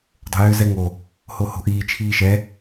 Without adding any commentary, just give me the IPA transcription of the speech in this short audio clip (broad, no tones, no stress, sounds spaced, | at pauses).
dˤ o̤ j ʏː z ɛ ŋ o | h o h o̤ ʔ iː t͡ʃʰ iː ʃ ɛ